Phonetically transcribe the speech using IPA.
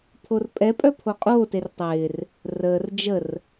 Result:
pʰ o r pʼ ɛ pʼ œ pʰ o qʼ oː t e r tˤ ɪː r | r əː r d͡ʒ ə r

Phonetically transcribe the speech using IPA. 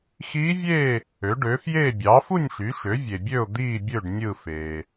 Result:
x iː˧˥ vʲ eː˥˨ | ø˩˥ ɖ øː˩˥ f j eː˥˨ bʲ ɑː˩˥ f u˥˨ nʲ ʃ y˩˥ ʃ ø˩˥ vʲ e˨ bʲ ø˥˨ ʊ̯ d̪ iː˥˨ bʲ ø˥˨ ɖ nʲ ɯ˥˨ f eː˨

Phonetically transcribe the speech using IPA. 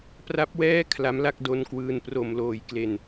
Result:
p r a˦˥ p̚ w ɛː˥˩ kʰ l a˦˥ m l a˥˩ k̚ d o˦˥ n k w ɯː˧ n p r o˨˩ m l oː˨˩ j k l e˨˩ n

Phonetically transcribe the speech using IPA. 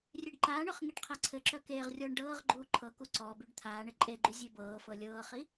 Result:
rʲ e ɖ ǃ aː ɳ œ χ ŋ i ɖ qʰ a ǀʰ ɘ ǁ œ k eː ʁ rʲ ɔː ɳ ɖ ɤː ʁ ɡ͡ǃ uː ǃʰ ɤ k u ǀ ɔ b y ɖ t̪ʰ aː ɳ ɘ ǃʼ e ɡ͡ǃ y zʲ e b ɤː f ɤ lʲ ɤː χ i

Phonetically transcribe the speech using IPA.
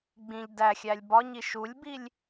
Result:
ɡ͡b ĩ ʎ d æ xʲ æ lʲ b ɒ ɲ i ʃ u lʲ b i lʲ

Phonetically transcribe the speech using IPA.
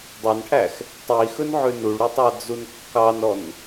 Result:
dˤ ɵ n ʈʰ æ x | tˤ i x ɵ n ʕ ʉ n u ɭ ɾ u tˤ ɑ d͡z u n kː ɑ n ɔ n

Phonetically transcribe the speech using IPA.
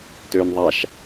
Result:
t øː n ðˤ a ʃ

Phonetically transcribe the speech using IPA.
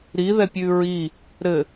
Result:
ɾ i ð ɛ pʲ ʉ ɹ i | ɾ ɘ

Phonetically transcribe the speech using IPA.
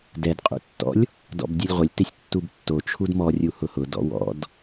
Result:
d ɛ d qʼ ṵ tː ɔ̰ lʲ | d ɔ̰ b dʲ u lʲ ʁʷ ɪ lʲ t ɪ sʲ tː u b tː o t͡ʃʰ u d m ɔ rʲ u h ʊ h ʊ d ɔ̰ w ɔ̰ d

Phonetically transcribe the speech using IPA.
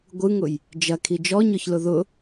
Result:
ɡʷ ɯ ŋ ʊ j | d͡ʒ ɐ kʰ i d͡ʒ ɔ ɲ ɔ ç l ʊ ð ʊ

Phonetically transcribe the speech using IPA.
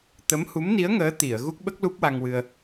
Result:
t̪ ə˧˥ m h u˧˥ m n i˧˥ ə̯ ŋ əː˧˥ t̪ i˨˩˨ ə̯ ɣ u˦˥ k̚ ɓ ə˦˥ k̚ l u˦˥ p̚ w a˧ ŋ w ɨ˧ ə̯

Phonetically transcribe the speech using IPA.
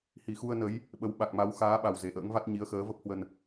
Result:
h i˧˩ x u˧ ə̯ n ə˨˦ j | ɓ ə˨˦ w ɓ a˨˩ k̚ m a˨˦ w x aː˨˦ ɓ a˨˩ w z e˨˩ ʔ ə̰ː˧˥ ŋ v a˦˥ t̚ ɲ i˨˦ ə̯ x əː˨˦ v ə˦˥ p̚ h w ə˧ n

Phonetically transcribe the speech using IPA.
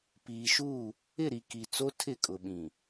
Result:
p iː˨ ʃ u˦˨ | ɪ˦˨ ɾ i˨ k i˨ t͡s o˦ tʰ ɪ˦˨ kʼ ʊ˨ ɓ ĩ˨

